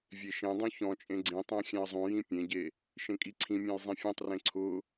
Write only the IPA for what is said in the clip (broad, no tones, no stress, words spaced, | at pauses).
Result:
vʲeʃẽdˤũ çɔ̃t͡ʃʼẽ ɡ͡ǀĩtˤɛ̃ xʲɛ̃ə̯zˤũjĩ pʲẽɟe | ʃẽkʼiǀʰĩmʲɔ̃j zˤĩfʲɛ̃tˤrẽ ǀʰʊ